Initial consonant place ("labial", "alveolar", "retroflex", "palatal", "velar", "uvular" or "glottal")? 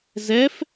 alveolar